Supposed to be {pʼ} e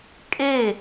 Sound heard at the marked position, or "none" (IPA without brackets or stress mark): kʼ